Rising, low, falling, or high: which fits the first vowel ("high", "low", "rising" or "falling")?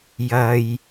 low